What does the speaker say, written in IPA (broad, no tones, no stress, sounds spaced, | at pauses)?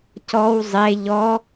c ɔ w zˤ e ʎ ɔ